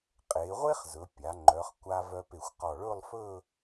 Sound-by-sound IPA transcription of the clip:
qʼ e˩˧ ʁʷ e˥ χ z ɵ˩˧ pʲ a˩˧ ŋ͡ǃ œ˩˧ χ kʷ a˧ v œ˧ p e˧˩ xʷ q ɔ˧˩ ɭ ɵ˥˧ lˠ f ɵ˥˧

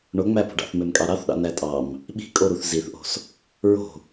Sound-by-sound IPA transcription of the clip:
ɳ o ŋ͡m æ p ṳ ɖ ɑ̰ θ m e m kʼ ɑ ɾ ɑ θ ɗ ɑ̰ n æ tʼ ɑ m | ɓ i̤ kʼ o ɾ u θ z i θ ʔ o̤ s | ɹ o̤

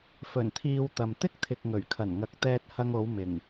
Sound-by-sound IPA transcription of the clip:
f ɵ˨˩ n t̪ʰ iː˨ w t̪ ɐ˨ m t̪ ɪ˥ k̚ t̪ʰ ɪ˨ k̚ ŋ ɵ˨˩ ɥ kʰ ɐ˨˩ n ŋ ɐ˨ k̚ t̪ ɛː˧ t̚ h ɐ˧ ŋ o˨˧ w m ɪ˨˩ ŋ

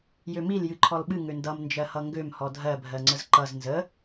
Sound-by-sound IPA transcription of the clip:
j ø m i l j ɨ ǃʰ ɔ l ɓ ɨ ŋ ø n d ʌ m n d͡ʒ ɜ h ʌ ŋ ɡ ø m h ɔ dʱ ɜ bʱ ɜ ŋ͡ǀ ə z ǃ ʌ z n z ə

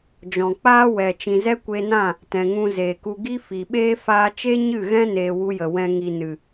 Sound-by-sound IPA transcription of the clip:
d͡ʒ ɔ̃˨ k͡p aː˦ w ɛ˨ t͡ʃ ĩ˨ z ɛ˦ kʷ e˧ n ã˦˨ | t ɛ̃˨ ŋ ũ˧ z eː˨ k u˧ ɡ i˦ f i˨ ɓ eː˦ f aː˧ t͡ʃ e˦ ɲ ɨ˦˨ ɣ ɛ̃˦ n eː˧ w u˦ j ə˨ w ɛ̃˦ ŋ i˧ n ɨ˨

